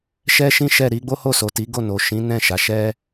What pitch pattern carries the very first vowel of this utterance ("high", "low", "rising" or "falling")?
high